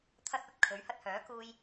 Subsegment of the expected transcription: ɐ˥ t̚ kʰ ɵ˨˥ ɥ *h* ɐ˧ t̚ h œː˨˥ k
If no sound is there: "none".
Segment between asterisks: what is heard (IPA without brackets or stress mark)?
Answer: h